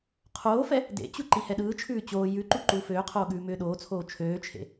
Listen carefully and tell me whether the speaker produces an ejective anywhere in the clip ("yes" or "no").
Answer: no